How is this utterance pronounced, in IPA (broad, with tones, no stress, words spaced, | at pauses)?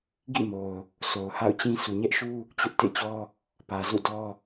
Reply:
ɡḭ˦˨mo˨ʊ̯ | so˨ʊ̯ha̰˦˨ʊ̯t͡ɕĩ˦ sʰu˨ɲɛ˦ʔʃu˦ | t͡ɕʊ˦ʔ tḛ˦˨t͡ɕɔ˦ | pä˨zṵ˦˨dɔ˦